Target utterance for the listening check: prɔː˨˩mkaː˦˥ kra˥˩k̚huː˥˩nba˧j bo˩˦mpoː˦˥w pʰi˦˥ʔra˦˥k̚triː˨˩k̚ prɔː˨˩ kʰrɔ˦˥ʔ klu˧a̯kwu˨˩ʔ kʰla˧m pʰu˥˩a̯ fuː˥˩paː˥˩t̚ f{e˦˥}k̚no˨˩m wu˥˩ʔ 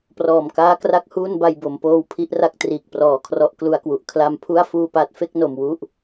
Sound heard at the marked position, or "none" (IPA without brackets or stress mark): e˥˩